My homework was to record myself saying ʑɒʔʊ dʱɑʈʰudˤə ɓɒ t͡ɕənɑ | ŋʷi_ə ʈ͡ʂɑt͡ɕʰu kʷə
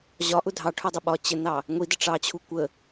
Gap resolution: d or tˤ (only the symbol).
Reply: d